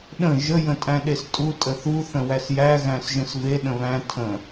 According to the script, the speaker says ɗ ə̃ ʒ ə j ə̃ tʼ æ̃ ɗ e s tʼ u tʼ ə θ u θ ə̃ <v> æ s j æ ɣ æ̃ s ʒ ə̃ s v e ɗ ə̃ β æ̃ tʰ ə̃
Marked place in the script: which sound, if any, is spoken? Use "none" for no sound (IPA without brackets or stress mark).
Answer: w